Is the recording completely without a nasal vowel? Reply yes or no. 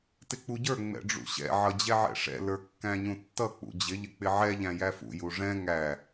no